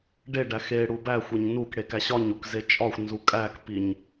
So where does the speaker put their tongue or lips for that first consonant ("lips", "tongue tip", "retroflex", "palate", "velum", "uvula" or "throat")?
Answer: retroflex